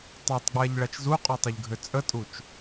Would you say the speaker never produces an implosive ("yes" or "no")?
yes